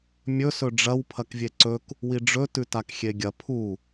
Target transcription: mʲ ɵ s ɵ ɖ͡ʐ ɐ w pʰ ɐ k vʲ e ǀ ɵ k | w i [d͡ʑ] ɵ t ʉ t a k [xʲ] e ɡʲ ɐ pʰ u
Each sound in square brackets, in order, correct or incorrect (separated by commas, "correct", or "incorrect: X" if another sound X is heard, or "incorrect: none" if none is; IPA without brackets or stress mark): incorrect: ɖ͡ʐ, correct